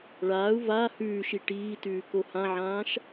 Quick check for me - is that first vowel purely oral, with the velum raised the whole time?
yes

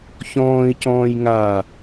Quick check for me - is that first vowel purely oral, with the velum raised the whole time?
no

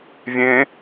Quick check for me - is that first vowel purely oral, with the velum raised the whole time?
no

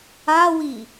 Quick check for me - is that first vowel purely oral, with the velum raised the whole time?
yes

